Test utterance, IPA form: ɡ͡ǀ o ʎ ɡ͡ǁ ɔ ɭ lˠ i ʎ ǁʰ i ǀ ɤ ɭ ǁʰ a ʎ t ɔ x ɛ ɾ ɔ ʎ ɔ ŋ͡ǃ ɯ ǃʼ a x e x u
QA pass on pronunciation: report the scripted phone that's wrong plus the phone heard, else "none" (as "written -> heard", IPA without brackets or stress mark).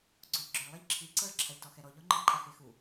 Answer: none